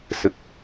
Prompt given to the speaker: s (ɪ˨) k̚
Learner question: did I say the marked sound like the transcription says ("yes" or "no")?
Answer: yes